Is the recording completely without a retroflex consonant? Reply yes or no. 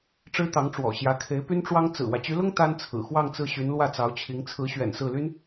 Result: no